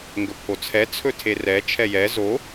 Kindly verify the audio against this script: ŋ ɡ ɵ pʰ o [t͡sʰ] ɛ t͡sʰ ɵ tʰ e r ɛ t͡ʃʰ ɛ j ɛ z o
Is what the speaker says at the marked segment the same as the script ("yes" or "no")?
yes